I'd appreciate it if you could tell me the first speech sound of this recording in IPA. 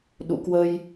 ɗ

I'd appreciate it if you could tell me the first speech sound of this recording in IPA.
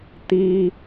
t̪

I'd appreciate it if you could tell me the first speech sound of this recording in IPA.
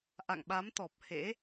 ʔ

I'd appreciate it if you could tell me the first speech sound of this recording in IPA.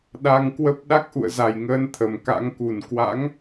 ɗ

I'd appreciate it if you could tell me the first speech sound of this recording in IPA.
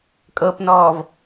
kʼ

